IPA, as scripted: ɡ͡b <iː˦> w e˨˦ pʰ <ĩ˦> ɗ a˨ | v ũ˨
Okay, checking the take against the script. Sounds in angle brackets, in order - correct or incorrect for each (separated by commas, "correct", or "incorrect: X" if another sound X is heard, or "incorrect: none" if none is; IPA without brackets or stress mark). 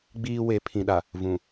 correct, incorrect: ĩ˨